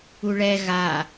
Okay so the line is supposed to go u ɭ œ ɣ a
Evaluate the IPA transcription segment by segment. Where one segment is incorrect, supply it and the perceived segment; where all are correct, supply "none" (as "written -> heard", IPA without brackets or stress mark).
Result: œ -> ɛ